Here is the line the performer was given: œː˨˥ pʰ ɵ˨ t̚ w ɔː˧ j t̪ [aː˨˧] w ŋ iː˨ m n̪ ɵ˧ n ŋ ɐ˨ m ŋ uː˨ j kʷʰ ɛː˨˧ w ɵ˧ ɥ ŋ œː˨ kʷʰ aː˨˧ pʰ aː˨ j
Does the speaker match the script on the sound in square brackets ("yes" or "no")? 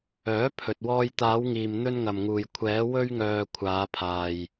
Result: yes